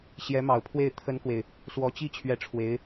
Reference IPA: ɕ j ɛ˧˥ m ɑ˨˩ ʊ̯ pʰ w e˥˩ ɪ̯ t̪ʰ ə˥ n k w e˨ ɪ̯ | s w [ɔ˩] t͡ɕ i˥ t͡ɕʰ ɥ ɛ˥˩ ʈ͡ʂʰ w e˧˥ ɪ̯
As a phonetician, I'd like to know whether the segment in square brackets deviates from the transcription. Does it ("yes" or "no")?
yes